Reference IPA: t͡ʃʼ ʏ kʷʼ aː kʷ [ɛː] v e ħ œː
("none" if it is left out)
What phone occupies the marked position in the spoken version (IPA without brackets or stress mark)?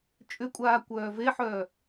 œː